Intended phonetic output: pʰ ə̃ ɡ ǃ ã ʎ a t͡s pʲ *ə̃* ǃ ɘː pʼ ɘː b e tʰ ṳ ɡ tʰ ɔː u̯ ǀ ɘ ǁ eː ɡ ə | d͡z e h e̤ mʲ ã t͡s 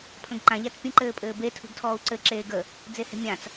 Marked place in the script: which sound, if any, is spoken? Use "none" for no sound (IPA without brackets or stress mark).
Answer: ə̃